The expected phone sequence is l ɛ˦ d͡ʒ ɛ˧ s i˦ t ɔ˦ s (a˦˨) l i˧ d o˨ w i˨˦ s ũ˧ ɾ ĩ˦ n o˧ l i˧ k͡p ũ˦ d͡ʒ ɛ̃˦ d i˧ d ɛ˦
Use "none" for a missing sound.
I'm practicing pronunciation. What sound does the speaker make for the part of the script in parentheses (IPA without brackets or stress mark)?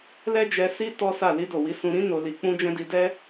a˦˨